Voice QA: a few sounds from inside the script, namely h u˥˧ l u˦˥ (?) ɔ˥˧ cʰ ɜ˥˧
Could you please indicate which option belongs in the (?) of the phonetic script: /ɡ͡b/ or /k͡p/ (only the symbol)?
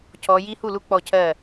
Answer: k͡p